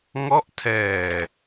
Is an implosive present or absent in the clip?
absent